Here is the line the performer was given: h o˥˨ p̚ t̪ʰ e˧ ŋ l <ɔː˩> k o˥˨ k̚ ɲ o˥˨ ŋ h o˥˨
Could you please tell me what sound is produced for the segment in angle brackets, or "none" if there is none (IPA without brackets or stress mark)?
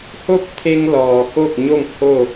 ɔː˩